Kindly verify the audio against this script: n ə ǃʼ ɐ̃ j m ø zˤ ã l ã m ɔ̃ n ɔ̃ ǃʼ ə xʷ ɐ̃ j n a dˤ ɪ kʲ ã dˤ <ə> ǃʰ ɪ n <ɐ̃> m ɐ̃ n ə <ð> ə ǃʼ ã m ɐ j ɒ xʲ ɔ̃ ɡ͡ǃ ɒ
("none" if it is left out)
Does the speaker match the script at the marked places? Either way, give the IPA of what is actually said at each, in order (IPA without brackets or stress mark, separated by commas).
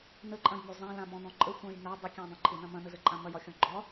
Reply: ə̃, ɐ̃, z